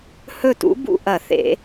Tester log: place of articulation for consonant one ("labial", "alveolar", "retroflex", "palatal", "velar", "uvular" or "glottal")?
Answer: glottal